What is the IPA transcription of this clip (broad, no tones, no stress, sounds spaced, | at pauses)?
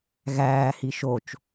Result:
ɣ æː h i ʃ o t͡ʃ